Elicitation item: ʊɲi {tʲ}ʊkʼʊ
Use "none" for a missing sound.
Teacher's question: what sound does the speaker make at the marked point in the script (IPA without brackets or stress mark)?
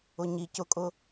c